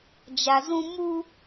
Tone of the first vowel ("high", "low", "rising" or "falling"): low